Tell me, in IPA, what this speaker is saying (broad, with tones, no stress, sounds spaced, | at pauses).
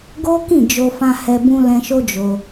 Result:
ɡ o˦ k ĩ˦˨ d͡ʒ o˧ f ã˧ h ɛ˧ b ũ˧ l ɛ̃˧ ʃ o˦ d͡ʒ o˧